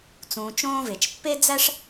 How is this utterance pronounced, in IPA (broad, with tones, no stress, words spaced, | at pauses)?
t͡sũː˨t͡ʃõː˦ve˩t͡ʃ pːe˥d͡zæ˥ʂ